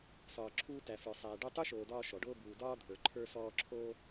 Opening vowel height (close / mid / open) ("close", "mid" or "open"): open